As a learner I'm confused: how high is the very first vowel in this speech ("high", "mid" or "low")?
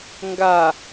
low